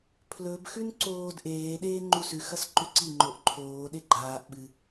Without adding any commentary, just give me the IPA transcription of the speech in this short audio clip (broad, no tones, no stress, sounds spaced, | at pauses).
pʰ l ɵ b x ʉ n ǀ oː d ʔ eː ɗ eː ŋ͡ǃ u s ʉ x ɐ s ǃ ʉ ǀ i ŋ͡ǃ o ʔ ǃʰ oː ɗ e ɡ͡ǃ aː ʔ ɓ ɨ